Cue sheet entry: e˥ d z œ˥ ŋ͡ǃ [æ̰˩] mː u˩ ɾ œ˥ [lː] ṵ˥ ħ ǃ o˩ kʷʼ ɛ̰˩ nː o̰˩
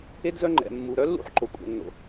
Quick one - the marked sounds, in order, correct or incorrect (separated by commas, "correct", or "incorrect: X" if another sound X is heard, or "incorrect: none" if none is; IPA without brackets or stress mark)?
incorrect: ɛ̰˩, correct